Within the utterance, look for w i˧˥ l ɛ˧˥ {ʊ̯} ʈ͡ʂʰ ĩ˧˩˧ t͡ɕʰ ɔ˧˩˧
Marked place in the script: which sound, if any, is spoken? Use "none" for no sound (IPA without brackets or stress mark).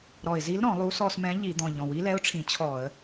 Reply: ʊ̯